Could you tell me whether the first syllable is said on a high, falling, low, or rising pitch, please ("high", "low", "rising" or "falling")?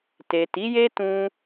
low